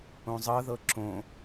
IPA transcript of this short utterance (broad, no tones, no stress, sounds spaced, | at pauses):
õ zˤ ɤ ð ɤ ǁ õ